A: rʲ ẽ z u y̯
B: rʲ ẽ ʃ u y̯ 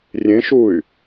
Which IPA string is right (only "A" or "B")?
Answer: B